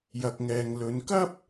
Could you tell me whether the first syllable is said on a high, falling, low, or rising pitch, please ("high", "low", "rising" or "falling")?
low